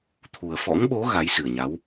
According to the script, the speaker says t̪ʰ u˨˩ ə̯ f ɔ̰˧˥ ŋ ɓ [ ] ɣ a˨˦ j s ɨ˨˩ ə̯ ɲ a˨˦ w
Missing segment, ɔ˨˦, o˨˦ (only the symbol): o˨˦